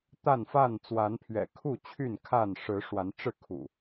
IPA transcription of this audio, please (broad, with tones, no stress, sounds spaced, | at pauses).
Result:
t̪ a˥˨ n f a˥˨ n t͡s w a˨˦ n pʰ ɥ ɛ̰˨˩ kʰ u˥˨ t͡ɕʰ y˥˨ n kʰ a˥˨ n ʂ ɻ̩˨˦ ʂ w a˨˦ n ʈ͡ʂ ɻ̩˥˨ kʰ ṵ˨˩